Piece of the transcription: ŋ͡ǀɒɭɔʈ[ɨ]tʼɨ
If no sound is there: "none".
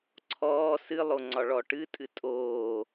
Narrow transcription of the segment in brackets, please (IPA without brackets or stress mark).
ɨ